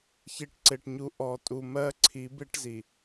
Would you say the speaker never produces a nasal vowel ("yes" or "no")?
yes